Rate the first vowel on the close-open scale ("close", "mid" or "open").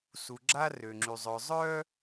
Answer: close